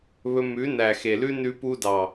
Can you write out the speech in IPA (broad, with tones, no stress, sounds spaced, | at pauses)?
β ɵ˧ m ʉ˨˦ n æ˨ x e˨ l ʉ˧ n ʉ˧ p u˧ d ɑ˨